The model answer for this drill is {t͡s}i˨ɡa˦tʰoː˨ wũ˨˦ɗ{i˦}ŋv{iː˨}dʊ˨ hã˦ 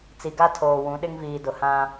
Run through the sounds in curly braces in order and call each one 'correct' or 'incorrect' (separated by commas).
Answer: correct, incorrect, correct